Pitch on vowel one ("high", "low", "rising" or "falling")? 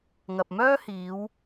low